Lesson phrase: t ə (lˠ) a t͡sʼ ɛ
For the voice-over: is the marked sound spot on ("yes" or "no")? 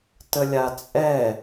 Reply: no